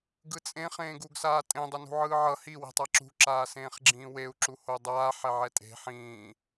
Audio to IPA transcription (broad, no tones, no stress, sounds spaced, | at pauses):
ɡ ɯ t͡sʼ ẽ χ ẽː ɡ u ɡ s aː tʼ ẽ dˤ ʌ n ṳ ʕ ɯː ʕ ʌ h i w i̤ tˤ a ǁ ṳ ǁ aː s ẽː χ ɡ͡ǁ ĩː w e u̯ ǁ u h o dˤ aː ħ ɛ ʕ ɛ tʼ e̤ ħ ĩː